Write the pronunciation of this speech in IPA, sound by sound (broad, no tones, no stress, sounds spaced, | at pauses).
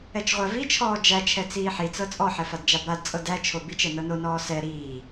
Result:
ɛ t͡ʃ ʁʷ æ v i t͡ʃʰ ɔː d͡ʒ æ t͡ʃʰ ɛ t͡s iː ħ i t͡s ɤ t͡sʼ ɔ ħ ɛ f a d d͡ʒ a b a d t͡sʼ ɤ d æ t͡ʃʰ o b i t͡ʃ ɛ n ɤ n o n ɔː s ɛ ɾ iː